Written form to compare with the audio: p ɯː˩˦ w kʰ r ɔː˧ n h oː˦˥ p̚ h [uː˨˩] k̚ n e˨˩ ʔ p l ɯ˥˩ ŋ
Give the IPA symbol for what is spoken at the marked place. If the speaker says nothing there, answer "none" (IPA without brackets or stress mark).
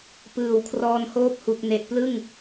u˨˩